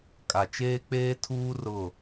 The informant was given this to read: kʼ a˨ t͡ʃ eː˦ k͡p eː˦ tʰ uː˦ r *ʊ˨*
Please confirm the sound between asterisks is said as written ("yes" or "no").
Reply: no